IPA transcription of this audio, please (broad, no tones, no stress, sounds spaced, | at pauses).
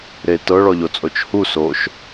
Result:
ɾ e t ɤ ɭ ɔ ʎ o t͡sʼ o t͡ʃ h u s oː ʃ